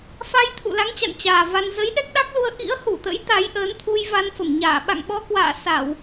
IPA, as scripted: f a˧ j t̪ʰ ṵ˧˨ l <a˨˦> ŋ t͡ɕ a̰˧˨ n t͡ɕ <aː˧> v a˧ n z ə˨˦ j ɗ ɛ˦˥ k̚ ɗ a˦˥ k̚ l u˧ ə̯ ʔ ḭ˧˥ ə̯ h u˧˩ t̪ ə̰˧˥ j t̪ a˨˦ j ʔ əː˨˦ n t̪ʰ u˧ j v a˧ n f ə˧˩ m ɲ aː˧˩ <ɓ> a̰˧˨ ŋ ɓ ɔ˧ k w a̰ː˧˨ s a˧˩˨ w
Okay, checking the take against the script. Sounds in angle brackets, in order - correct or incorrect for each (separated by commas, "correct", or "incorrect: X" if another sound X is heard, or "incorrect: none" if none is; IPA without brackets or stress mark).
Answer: correct, incorrect: aː˨˩, correct